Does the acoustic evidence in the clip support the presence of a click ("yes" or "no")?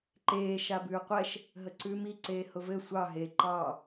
yes